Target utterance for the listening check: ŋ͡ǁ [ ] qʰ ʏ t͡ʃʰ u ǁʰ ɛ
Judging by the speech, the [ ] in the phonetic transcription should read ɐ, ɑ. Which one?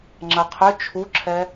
ɐ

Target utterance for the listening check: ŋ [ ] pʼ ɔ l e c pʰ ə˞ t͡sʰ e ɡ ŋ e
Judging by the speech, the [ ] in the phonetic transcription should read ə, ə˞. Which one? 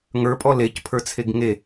ə˞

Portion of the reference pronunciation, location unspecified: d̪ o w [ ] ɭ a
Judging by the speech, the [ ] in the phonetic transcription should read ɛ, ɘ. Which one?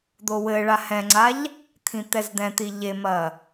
ɘ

